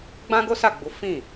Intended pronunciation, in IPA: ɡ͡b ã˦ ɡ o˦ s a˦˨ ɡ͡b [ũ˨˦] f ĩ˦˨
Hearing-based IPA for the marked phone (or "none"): u˨˦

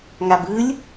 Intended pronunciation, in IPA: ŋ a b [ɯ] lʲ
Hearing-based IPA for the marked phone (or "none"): ɯ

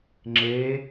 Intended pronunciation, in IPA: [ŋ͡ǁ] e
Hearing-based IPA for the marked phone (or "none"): ŋ͡ǁ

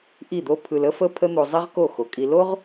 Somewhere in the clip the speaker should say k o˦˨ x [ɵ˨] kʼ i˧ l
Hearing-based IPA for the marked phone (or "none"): o˨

